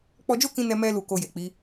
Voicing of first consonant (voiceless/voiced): voiceless